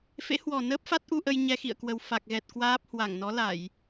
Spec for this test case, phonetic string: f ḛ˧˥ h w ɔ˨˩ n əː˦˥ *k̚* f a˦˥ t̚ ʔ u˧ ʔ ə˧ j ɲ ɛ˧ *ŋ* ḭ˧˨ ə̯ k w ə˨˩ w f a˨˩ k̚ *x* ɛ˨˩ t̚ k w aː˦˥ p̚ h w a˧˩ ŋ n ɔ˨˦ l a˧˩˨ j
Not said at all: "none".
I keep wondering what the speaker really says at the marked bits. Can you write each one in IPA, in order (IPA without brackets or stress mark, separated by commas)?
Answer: p̚, x, ɣ